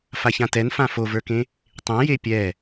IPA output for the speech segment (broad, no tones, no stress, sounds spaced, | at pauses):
f a ç ã t ɛ n f ã f o v ə˞ k ẽ | tˤ ẽ j e pʲ ɛ